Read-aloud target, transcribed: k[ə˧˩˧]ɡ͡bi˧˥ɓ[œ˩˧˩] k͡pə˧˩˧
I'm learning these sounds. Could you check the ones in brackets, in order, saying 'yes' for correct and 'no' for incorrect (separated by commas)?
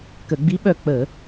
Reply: yes, no